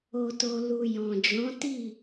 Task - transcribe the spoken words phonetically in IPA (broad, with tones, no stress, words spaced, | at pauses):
o˨to˨ lu˨ jɔ̃˨d͡ʒɔ̃˨˦ ti˦˨